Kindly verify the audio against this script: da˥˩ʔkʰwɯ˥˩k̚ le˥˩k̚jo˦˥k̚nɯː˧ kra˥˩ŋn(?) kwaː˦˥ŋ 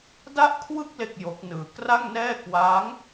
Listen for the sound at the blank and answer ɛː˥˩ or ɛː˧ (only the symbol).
ɛː˥˩